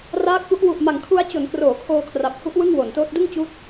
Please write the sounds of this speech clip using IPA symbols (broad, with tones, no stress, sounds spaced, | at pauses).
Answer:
r aː˦˥ k̚ p u˦˥ ʔ w u˨˩ ʔ m a˨˩ ŋ kʰ u˧ a̯ t͡ɕ o˩˦ n k r oː˩˦ kʰ oː˧ kʰ r a˨˩ p̚ h u˦˥ ʔ w ɯ˥˩ ŋ w o˩˦ n t oː˦˥ t̚ d ɯ˥˩ ŋ t͡ɕ uː˦˥ t̚